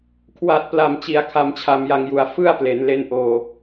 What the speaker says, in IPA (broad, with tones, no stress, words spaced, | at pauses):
kʰwa˨˩t̚pla˨˩mt͡ɕi˩˦a̯ kʰa˨˩mt͡ɕʰa˨˩mja˨˩ŋju˩˦a̯ fɯ˥˩a̯ple˩˦nle˦˥nʔoː˧